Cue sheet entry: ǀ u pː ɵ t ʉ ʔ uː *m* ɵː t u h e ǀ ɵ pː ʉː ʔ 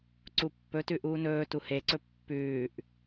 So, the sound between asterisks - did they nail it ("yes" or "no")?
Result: no